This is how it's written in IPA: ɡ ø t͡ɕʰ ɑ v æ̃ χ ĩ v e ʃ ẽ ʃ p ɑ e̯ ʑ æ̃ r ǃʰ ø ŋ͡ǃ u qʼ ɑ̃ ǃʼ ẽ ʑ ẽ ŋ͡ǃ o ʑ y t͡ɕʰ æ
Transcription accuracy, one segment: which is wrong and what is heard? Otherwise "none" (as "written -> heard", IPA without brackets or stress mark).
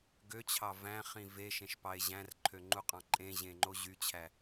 none